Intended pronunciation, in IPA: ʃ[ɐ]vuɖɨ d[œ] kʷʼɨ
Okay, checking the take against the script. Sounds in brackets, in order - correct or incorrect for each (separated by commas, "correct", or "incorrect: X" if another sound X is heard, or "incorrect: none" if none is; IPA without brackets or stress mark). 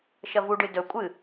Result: correct, incorrect: ɵ